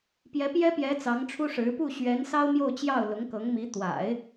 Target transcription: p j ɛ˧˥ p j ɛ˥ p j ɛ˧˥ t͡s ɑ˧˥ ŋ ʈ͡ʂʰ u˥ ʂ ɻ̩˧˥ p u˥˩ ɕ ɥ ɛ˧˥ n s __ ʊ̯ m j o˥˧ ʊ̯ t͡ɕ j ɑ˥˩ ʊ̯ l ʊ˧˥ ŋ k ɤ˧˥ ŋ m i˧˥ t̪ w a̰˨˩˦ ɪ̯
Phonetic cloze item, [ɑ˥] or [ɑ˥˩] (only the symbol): ɑ˥